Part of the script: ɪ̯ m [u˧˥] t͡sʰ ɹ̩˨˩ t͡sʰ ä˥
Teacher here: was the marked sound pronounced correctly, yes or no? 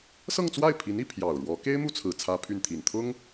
no